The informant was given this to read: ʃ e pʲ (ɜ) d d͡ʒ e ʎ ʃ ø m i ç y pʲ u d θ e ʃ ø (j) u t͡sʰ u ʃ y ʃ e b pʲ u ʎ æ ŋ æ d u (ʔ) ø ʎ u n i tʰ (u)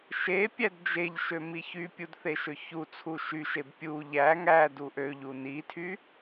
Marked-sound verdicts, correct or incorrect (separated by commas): incorrect, incorrect, correct, incorrect